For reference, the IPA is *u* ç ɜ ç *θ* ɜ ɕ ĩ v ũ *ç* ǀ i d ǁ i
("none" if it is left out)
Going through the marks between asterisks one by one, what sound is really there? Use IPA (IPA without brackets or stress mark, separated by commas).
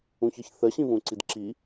ũ, θ, none